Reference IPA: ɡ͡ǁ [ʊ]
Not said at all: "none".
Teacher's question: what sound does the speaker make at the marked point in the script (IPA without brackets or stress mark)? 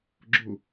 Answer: ʊ